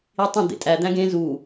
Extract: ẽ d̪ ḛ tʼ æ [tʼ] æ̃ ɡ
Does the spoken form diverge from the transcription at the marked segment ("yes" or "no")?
yes